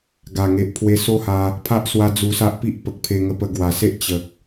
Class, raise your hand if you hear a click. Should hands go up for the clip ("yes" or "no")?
no